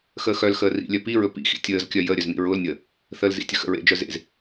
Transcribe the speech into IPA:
x əː x œ l x əː r ḭ lʲ œ p i ɹ ɵ p ḭ x ḭ tʲ əː z kʲ œ j ə ɾʲ œ z n ḭ ɹ ʊː l nʲ əː | θ ə l z ḭ tʲ ə x ə̰ ɹ ḛ d͡ʒ œ z ḛ z

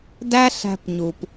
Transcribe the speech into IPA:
d æ˦ ɬ æ̤˧ p ɲ u˨ p

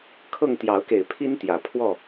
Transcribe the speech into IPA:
kʰ ɤ˥˨ ŋ t̪ j ɑ˨˦ ʊ̯ k e˨˩ ɪ̯ pʰ i˦ n t̪ j ä˨˩ pʰ w ɔ˥˨

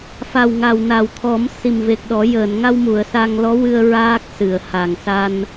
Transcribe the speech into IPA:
f a˨˩ w ŋ a˨˩ w n a˨˩˨ w t̪ʰ ɔ˨˩˦ m s i˨˩ m v e˨˩ k̚ ɗ ɔ˨˩˦ j əː˨˩˨ n ŋ a˧ w m u˨˩˨ ə̯ s a˧ ŋ l ɔ˧˥ w ɨ˧ ə̯ ɹ aː˦˥ k̚ s ɨ˨˩˨ ə̯ h a˨˩ ŋ s a˧ n

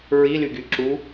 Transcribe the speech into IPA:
ɹ i l y ɡ y ǁ u

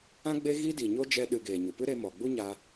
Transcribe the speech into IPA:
ã˦ ɡ͡b e˦ ɣ i˦ d i˨ ɲ o˦ d͡ʒ ɛ˧ ɗ ɨ˨ ɡ eː˨ ɲ u˨ p ɨ˦ ɾ e˧ m ɔ˨ ɡ͡b u˦ ɲ a˧

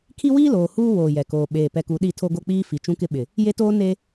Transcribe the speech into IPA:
kʰ i˦ w iː˦ l oː˨ h uː˦ w oː˨ j ɛ˨ k oː˨ ɓ eː˨ p ɛ˨ k u˨ ɗ i˦˨ tʰ o˦ ɡ o˦ k͡p iː˦ f i˨ t͡ʃ ũ˦ k ɪ˦ ɓ ɪ˨ | j e˦ t oː˦ n e˦

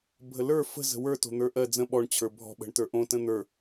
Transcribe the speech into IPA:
bʱ ə l ə˞ f ə̤ z ə̤ w ə˞ t o̤ n̪ ə˞ ʔ ɜ d͡z ə̃ ɓ ɔ ɳ t͡ɕʰ ə˞ bʱ ɔ̤ ɓ ə̤ ɳ t ə˞ ʔ õ t ə̃ n̪ ə˞

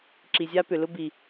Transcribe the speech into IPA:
ǁ i˨ zʲ a˦ p ʏ˨ l ʊ˦ b i˨

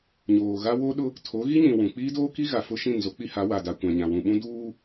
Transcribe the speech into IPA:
ɲ oː˨ ɣ a˦ w o˦ ɗ ʊ˦ | tʰ o˨˦ ɣ i˦ ɲ ĩ˨ w ũ˨ k͡p iː˦ d oː˦ k i˦ ɣ a˨ f ʊ˦ ʃ ĩ˦˨ n z o˦ k͡p i˦ h a˨˦ w a˨ d a˨ kʷ ã˨ ɲ ã˨ w ũ˨ ɓ ũ˦ d uː˦

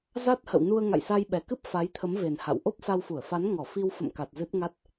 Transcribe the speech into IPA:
z a˦˥ t̚ h ə̰˧˨ w n u˧ ə̯ ŋ a̰˧˨ j s a˧ j ɓ ɛ˨˩ k ɨ˦˥ p̚ f a˨˦ j t̪ʰ ə˨˦ m v e˨˩ n h a̰˧˨ w ʔ o˦˥ p̚ s a˧ w f u˧˩ ə̯ f a˨˦ n ŋ ɔ˧˩ f i˧ w f ə̰˧˨ m k a˨˩ t̚ z ɨ˦˥ t̚ ŋ a˦˥ t̚

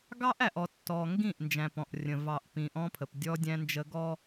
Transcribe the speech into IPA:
ɡ ɑ˦ ʔ æ˨ ʔ ɔ˨ tː ɔ˨ ŋ ɡ ĩ˦˨ ʔ n d͡ʒ æ̃˨ p ɔ̃˨ ʔ rʲ ə̃˨ v ɑ˨ ʔ p ĩ˨ ʔ ɔ̃˦ pʰ ə˨ p dʲ ɔ˦ dʲ æ̃˦ n d͡ʒ ə˦ ɡ ɔ˦

